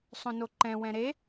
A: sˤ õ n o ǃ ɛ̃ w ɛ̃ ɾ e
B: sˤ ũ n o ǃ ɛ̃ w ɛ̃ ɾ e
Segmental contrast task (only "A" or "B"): A